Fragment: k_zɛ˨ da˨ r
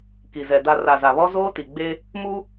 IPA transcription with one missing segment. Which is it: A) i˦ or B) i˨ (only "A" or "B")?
B